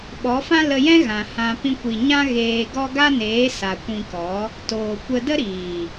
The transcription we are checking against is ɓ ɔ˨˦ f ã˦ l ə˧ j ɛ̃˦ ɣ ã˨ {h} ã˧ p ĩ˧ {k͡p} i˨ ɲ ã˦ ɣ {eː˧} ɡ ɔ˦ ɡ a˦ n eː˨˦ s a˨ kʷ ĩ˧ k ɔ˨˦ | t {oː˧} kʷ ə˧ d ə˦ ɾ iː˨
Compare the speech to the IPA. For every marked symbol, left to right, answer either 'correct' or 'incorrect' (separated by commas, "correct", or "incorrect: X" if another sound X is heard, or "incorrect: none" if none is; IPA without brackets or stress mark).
correct, incorrect: kʷ, correct, incorrect: oː˨